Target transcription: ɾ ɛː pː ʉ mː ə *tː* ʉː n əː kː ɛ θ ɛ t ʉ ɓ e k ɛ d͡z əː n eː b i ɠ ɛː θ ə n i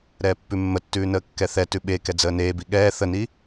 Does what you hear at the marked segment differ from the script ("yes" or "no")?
no